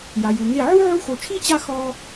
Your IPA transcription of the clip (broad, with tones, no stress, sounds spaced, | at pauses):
j a˨ j u˨ ŋ e˦˨ ʕ u˦ ʕ u˧ x o˨ t͡ʃʰ i˦˨ t͡ɕ a˧ x ɔ˧